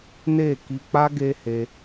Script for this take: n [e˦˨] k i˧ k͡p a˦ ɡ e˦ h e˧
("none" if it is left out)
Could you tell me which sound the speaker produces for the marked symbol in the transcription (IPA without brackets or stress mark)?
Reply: e˦˨